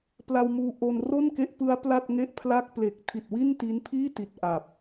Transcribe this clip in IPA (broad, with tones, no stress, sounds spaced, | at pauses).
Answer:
p l a˧ w m uː˦˥ ʔ o˧ n r o˥˩ n k e˦˥ ʔ p ɯ˦˥ a̯ p l a˥˩ t̚ ŋ e˥˩ ʔ pʰ l a˥˩ k̚ p l e˨˩ k̚ tʰ i˨˩ t̚ w i˥˩ n t i˦˥ n pʰ iː˥˩ t i˨˩ t̚ ʔ a˨˩ p̚